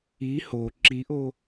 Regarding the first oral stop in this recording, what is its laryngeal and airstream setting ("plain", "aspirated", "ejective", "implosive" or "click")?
click